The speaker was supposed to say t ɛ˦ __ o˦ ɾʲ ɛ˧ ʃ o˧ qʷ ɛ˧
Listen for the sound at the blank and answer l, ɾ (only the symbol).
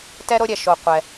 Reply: ɾ